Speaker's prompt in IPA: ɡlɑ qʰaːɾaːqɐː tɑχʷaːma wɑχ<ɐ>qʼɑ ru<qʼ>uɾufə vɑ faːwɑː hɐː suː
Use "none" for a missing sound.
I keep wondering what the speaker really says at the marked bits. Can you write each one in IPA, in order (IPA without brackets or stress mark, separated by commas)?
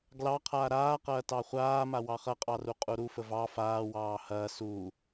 ɐ, qʼ